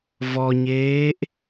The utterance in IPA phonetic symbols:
v ɔ ɲ eː ʔ

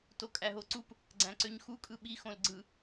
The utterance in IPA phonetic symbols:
t o kʼ æ ɦ o ǀ u p | ɡ͡ǀ æ̃ ǀ ø ɲ x u kʼ ɯ ɓ i x õ l ɡ͡ǀ ɯ

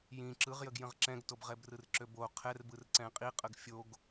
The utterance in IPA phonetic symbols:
j ĩ ǁ ɯ ʁ j ə ɡ j ə̃ ʁ ǁ ɛ̃ ɡ t o b ʁ ɛ b r ɯ r ǁ ø b o qʰ ɛ r b ɯ r ǀ ɛ̃ qʼ i qʼ ə ɡ fʲ o ɡ

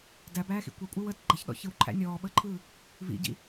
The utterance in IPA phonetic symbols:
d æ b æː x ḭ kʷ ɐ kʷʼ əː w əː t ɡ͡ǃ ɐ ç ɗ ɔ̰ ç ɯ w ǃʰ æ̰ nʲ ɔː ɓ əː ǃʰ ɯː | v ḭ ɟ ḭ

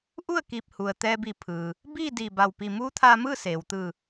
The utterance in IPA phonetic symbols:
ʔ u˥˨ ə̯ k iː˧˩ p̚ h u˩ ə̯ t̪ ɛː˧ b i˧˩ pʰ ɯː˩ | b iː˥˨ d iː˧˩ b a˧˩ w p i˧˩ m uː˧˥ t̪ʰ aː˧ m ɯː˥˨ s eː˩ w t̪ ɯː˧˩

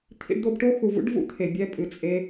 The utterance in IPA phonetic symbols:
t̪ʰ ḭ˧ ɖ d̪ o˧ b ʈ o˦ x u˨ v ṵ˦ ɖ v ṵ˦ t̪ʰ e˨ bʲ ɛ˧ pʼ ɨ˨ t͡sʼ e˧

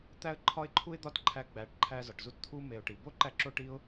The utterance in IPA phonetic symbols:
t̪ æ˧ ə̯ ǃʰ ɒ˦ ɪ̯ ǃʰ u˦ ɪ̯ d̪ ɒ˦ t ǃʰ æ˧ ɡ͡b æ˨˦ ʈ ǃʰ æ˧ z ɒ˨ ʈ z u˦ t t̪ʰ u˦ m e˨ ʊ̯ ʈ i˨ b o˦ ǃ æ˧ ǁ o˦ ʈ i˦ ʊ̯

